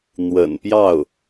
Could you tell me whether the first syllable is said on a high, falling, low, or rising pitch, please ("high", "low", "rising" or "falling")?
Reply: low